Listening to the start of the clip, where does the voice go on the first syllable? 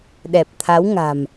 low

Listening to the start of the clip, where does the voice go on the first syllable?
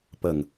low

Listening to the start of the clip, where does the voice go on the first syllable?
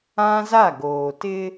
high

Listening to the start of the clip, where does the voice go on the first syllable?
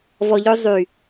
low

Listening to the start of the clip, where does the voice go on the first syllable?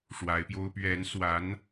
rising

